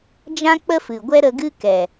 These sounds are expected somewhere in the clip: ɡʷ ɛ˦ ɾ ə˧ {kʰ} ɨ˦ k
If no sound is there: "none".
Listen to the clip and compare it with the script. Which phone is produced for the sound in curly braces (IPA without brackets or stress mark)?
ɡ